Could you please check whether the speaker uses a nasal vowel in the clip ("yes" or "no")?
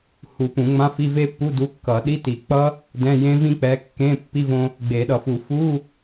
yes